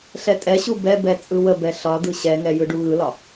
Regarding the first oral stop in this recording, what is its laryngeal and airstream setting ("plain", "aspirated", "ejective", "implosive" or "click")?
ejective